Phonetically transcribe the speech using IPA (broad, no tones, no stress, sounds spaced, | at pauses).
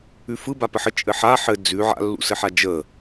ʉ f ɯ b a p ə ħ ə t͡ʃʼ ɘ ħ a ħ ɘ d͡z ʉ ʕ a̰ lː ṵ s ɘ ħ a d͡ʒ ə